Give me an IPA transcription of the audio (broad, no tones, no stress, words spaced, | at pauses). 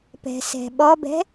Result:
pɛ̤sɛ̤ɓɔbɛ̤